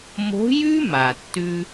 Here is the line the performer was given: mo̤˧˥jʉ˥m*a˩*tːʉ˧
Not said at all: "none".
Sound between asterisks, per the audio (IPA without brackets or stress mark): a˩